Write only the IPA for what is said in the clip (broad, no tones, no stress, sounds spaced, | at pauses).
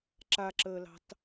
ǁ a ǁ əː l ɑ̤ t